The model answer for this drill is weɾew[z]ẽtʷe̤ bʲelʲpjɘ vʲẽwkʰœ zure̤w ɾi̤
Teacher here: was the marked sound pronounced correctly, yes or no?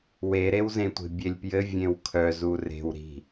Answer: yes